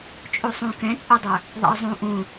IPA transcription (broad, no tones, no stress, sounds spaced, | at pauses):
t͡ʃʼ u sˤ ũ k ɛ̃ t͡sʼ e dˤ ə˞ | ðˤ ḭ ə̯ zˤ ũ ʔ ũ